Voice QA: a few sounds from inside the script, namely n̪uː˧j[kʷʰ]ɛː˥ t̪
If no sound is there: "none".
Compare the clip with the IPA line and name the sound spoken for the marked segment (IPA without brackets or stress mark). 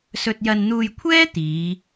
kʷʰ